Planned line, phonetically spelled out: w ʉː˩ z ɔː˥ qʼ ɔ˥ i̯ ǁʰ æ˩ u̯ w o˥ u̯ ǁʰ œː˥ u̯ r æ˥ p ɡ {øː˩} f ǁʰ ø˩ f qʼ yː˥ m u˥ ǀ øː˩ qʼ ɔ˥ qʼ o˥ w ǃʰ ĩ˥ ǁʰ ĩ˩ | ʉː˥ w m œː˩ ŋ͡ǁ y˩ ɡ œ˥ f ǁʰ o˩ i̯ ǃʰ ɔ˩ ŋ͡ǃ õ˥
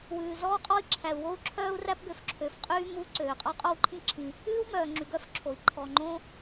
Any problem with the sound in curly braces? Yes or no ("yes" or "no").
yes